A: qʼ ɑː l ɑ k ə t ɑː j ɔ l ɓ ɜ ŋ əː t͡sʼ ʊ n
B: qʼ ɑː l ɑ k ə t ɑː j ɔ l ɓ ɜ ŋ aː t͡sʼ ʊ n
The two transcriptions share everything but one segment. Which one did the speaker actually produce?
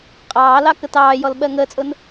A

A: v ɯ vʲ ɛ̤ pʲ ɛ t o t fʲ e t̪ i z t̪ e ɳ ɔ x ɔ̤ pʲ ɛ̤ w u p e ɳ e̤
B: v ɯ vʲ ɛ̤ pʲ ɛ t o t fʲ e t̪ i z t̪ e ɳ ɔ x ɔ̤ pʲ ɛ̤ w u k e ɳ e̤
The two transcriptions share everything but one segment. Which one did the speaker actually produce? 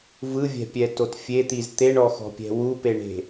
A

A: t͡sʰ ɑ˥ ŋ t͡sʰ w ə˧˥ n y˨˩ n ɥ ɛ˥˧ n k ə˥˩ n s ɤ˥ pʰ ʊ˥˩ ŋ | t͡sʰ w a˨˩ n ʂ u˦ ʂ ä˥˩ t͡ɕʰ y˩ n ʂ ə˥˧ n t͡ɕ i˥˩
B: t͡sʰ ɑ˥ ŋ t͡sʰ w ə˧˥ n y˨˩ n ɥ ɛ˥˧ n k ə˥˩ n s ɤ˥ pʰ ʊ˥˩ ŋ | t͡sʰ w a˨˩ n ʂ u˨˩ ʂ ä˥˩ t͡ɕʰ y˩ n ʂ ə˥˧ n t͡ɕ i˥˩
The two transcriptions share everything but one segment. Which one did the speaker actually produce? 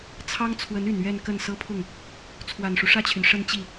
A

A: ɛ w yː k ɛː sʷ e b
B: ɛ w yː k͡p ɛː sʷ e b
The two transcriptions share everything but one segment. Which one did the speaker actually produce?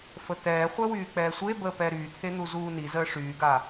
B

